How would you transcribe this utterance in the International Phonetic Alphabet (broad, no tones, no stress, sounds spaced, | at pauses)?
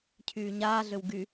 cʰ yː ɲ aː ɮ ø w ɡ y